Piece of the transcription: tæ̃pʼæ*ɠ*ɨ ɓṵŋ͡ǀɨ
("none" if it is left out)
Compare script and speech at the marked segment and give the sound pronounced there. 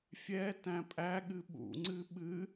ɠ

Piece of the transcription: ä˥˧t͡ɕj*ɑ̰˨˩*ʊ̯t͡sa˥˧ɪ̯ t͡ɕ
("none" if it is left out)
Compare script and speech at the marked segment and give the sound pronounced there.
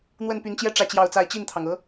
ɑ˥˧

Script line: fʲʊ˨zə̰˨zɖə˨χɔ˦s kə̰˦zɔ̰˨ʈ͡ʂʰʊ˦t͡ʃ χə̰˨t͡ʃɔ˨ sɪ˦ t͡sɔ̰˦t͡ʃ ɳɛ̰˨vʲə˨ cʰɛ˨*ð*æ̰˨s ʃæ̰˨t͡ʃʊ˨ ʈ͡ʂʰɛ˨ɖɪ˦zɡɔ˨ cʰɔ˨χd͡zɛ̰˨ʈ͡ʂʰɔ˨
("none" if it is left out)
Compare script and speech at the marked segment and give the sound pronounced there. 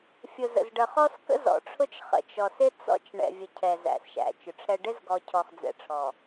z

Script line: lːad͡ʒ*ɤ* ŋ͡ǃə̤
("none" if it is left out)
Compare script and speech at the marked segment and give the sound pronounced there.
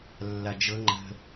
ɤ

